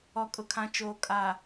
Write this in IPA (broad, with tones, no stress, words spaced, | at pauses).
ɔ˨kʼʊ˨kʰã˨t͡ʃoː˨ kʼa˨